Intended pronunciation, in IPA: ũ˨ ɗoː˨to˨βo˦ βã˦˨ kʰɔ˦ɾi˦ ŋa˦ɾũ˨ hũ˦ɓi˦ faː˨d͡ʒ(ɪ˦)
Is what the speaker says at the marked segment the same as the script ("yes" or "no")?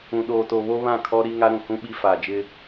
yes